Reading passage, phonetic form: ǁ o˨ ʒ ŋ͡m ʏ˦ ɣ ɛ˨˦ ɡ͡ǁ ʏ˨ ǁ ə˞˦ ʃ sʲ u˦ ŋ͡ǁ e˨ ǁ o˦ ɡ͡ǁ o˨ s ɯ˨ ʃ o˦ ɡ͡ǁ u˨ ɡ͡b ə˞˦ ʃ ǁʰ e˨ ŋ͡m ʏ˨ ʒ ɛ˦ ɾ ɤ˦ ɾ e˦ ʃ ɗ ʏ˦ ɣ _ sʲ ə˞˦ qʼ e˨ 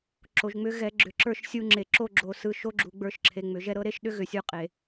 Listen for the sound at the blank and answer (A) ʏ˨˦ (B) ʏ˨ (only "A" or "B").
B